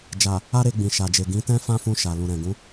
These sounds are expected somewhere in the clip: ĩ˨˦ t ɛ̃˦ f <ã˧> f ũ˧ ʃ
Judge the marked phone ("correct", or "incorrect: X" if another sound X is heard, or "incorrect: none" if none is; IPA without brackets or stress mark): incorrect: ã˦